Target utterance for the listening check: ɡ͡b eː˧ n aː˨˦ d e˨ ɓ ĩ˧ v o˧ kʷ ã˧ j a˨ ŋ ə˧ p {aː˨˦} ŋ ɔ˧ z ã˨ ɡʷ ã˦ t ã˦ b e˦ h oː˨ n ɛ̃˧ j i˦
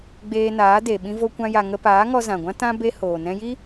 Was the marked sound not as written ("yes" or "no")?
no